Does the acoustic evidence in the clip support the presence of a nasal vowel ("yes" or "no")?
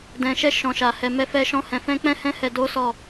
yes